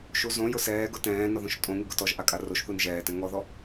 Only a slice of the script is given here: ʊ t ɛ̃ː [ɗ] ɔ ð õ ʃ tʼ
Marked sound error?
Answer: yes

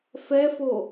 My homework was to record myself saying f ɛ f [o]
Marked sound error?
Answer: no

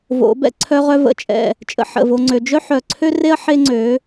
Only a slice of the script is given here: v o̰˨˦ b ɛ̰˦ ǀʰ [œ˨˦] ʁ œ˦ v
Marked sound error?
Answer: yes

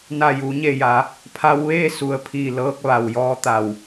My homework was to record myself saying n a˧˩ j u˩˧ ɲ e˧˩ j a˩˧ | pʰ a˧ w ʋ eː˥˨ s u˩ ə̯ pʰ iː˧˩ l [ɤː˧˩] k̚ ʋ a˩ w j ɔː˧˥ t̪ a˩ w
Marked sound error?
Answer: yes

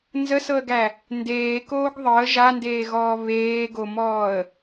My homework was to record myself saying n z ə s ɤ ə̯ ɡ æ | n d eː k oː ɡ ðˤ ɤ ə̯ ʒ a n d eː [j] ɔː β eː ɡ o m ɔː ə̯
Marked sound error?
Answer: yes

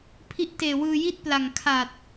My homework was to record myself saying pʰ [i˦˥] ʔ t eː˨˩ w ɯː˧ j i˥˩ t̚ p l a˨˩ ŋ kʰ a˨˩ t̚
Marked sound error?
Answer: no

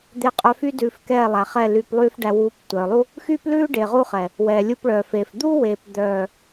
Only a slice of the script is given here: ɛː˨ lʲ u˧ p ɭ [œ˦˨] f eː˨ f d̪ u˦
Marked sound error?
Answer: yes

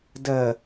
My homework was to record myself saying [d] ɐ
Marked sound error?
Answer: no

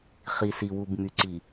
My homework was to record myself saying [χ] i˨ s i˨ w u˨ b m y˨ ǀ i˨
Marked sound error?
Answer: no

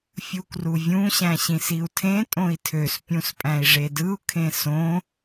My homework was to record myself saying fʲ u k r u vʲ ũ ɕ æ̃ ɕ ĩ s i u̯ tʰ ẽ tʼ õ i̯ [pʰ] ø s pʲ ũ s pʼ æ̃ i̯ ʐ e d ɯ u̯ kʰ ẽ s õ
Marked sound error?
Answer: yes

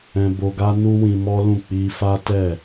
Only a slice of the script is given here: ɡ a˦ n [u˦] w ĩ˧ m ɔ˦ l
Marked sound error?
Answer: no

